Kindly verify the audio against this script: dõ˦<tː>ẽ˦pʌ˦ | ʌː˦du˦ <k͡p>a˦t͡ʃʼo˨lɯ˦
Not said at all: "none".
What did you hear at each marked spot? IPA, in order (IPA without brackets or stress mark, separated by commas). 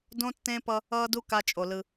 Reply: tː, k